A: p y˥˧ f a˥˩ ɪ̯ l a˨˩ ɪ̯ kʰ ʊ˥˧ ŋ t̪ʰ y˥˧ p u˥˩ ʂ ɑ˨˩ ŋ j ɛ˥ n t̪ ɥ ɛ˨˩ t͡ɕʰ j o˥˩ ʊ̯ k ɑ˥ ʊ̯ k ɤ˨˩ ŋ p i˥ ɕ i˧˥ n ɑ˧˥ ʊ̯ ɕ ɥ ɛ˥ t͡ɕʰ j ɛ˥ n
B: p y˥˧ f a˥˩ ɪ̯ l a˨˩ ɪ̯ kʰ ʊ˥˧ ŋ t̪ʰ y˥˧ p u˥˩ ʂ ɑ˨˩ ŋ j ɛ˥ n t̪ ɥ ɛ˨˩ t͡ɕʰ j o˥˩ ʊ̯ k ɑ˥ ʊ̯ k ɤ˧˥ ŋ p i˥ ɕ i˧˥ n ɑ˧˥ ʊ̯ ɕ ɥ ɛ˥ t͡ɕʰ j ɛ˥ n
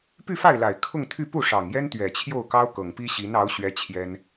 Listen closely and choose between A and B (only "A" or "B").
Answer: A